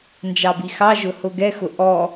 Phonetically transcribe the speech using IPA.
n d͡ʒ ɑ b i x ɑ ʒ ʊ h ʊ ɡ ɛ x ʊ ʔ ɔ

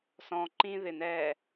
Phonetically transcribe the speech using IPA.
s ɔ̃ ǃ ĩ ð ɪ n ɛ

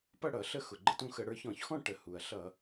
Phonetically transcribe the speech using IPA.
p ʌ˥˨ ɽ ʌ˧˩˧ ɬ ə˥˨ x ʊ˩ ɡ͡ǃ ə˥˨ t ũ˥˨ x ə˧˩˧ ɽ ə˞˧ ç ɔ̃˧˩˧ ç x ɔ̃˥˨ ʈ ə˩ h u˩ ɐ̯ ɬ ʌ˧˩˧

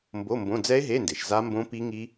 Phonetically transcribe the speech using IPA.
m b o˧˥˧ m b õ˧˥˧ d͡z ɛ˦˥ e̯ ɦ e˧˥˧ n d e˩ ʃ z a˦˥ m b õ˦˥ p i˦˥ ŋ i˦˥

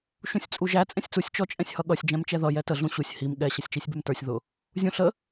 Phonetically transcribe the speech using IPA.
ʃ ũ sʲ t͡sʼ u ʒ æ t͡sʼ ɛ̃ sʲ t͡s u sʲ t͡ʃ ɔ t͡ʃʼ ɛ̃ sʲ h ʌ ɠ ʌ sʲ d͡ʒ ɛ̃ m t͡ʃ ɛ ð ʌ j ɛ t ə ɮ ũ ɕ u sʲ h i m ɠ ɛ ɕ ʌ sʲ t͡ʃ i sʲ b ɛ m t ə˞ sʲ ð ʊ | zʲ ũ ɬ ə

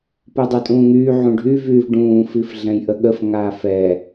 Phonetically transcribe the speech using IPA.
p u dˤ ø tʼ ũː ŋ yː ʕ ũ ɖʱ y v yː v ɖ ũː f i f ɮ ɛ̃ j ʔ ə ɠ ə f ŋ aː f ɛ

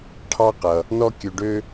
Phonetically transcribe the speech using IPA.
ʈʰ ɑ˥ q ʌ˩ | n ɔ˥ kʲ ø˧ ɖ ø˥

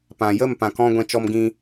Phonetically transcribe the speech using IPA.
p ã˨ j ə˦˨ m p ã˨ k ɔ̃˧ ɡʷ ɛ̃˦ t͡ʃ ɔ˦ m ɡ ĩ˦

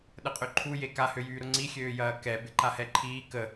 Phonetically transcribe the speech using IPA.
ɗ ə qʼ ø ǃʰ u j e k a h ø j yː ɾ ʊ ŋ͡ǀ i xʲ øː j ɐː k ɛ b ɪ ǃ a h ɛ ǃʰ iː k ə

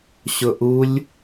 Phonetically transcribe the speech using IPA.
ɕ ʊ ʔ u lʲ

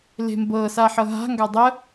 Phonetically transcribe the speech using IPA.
l e̤ m b ɤ s a ħ ɤ ɦ a̤ ŋ ɡ a dˤ ə

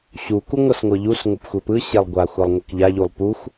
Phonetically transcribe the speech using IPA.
ɕ u k u ŋʷ ɤ s ŋʷ ɤ ʎ u s ŋʷ ɤ p xʷ e p ɯ ɕ e lˠ ɡʷ a xʷ a lˠ ŋʷ ɛ k ʎ a ʎ u lˠ p u xʷ

